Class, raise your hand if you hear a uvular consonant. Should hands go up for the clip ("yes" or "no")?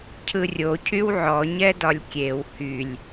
no